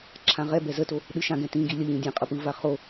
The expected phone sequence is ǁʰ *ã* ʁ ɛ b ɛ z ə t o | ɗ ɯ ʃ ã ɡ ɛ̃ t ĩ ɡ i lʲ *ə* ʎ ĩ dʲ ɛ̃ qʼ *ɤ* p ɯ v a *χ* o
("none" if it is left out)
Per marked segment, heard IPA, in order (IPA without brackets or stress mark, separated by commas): ã, ə, ɤ, χ